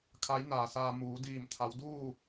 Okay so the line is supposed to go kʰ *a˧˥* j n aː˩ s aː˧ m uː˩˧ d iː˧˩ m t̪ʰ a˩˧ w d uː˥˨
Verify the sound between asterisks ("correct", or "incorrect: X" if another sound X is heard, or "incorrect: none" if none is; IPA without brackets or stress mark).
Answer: correct